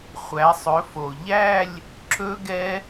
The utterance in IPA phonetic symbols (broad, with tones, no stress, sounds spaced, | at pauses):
χʷ æ˨˦ sˤ ɵ˨˦ f o˨ ʎ æ˥˧ lʲ | ǁ ɵ˦˥ ɡ ɛ˦˥